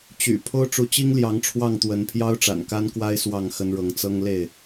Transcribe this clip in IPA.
t͡ɕy̰˨˩ pʰo˦ʊ̯ʈ͡ʂu˨˦t͡ɕi˦ŋ ljɑ˨˦ŋʈ͡ʂʰwɑ˥˨ŋt̪wə˨˦n pʰjɑ˦ʊ̯ʈ͡ʂa̰˨˩nka˦nkwa˦ɪ̯ swɑ˥˨ŋxə˦nɻɤ˨˦ŋ t͡sɤ˦ŋ le˥˨ɪ̯

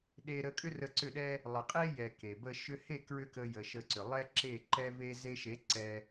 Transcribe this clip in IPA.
ɗe˧ɾə˧kʼʏ˦ rə˧ǀʏ˦˨ɗɛ˦ | lˠə˨qʼe˦ jɛ˧ke˨bə˦ ʃʏ˧he˦˨ kɹʏ˦kə˧jə˨ ʃə˧ǀʏ˨ lˠɛ˦ǁe˦˨ ǃɛ˧ve˧ ze˧ʃe˨˦ ǀɛ˧

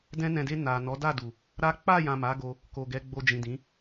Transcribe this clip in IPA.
dɛ̃˧nɛ̃˨de˧ na˨ nɔ˨˦da˦˨du˨ | ɾa˦ k͡pa˦˨jã˨ ma˨˦ɡo˧ | ko˨ɡɛ˨˦ ɡ͡bo˧d͡ʒĩ˨dĩ˨˦

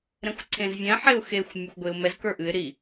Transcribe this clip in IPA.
ɾɛ̃xʷǀʰẽzvʲɛ̃ ħeʊ̯xexʷ mʲɛxʷɡʷeʊ̯mɛz kə˞ʔɨɪ̯ ɾi

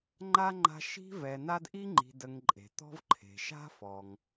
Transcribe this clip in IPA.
ŋ͡ǃa˥ŋ͡ǃa̤˦ʃi̤˥ vɛ˨na˦d ʔi˦ŋ͡ǃi̤˨də˨ŋ ǃʼe̤˩t̪ɔ̤˦vǃʰe̤˩ ʃa̤˥fɔ˩ŋ

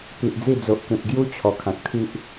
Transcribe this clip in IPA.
pi˨ʔd͡zi˥˧ d͡zo˨ʔkẽ˨p̚ɡju˦ t͡ɕʰɔ˨˩kʰã˨k̚t̪ʰi˦ʔ

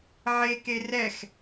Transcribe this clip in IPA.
ʕeke rɛx

